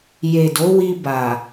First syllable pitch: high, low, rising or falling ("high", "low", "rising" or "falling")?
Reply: low